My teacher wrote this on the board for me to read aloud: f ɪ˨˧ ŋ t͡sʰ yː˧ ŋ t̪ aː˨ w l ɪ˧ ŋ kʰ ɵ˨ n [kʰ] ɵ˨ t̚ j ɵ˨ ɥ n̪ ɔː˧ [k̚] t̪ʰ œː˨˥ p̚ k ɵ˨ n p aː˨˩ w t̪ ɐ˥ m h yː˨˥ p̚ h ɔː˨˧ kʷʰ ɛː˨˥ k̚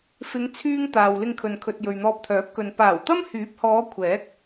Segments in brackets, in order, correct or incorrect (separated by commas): correct, incorrect